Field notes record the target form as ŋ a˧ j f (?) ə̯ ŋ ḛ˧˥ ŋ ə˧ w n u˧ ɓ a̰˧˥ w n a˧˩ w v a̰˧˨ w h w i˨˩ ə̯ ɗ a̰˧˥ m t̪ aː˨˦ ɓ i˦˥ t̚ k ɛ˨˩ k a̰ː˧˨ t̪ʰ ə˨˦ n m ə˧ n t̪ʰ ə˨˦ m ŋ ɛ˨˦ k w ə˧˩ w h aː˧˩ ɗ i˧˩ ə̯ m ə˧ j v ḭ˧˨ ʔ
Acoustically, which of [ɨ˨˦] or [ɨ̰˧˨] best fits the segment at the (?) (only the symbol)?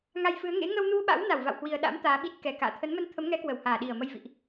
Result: ɨ˨˦